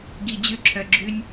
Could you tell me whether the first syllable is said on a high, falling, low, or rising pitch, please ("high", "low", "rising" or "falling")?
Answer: low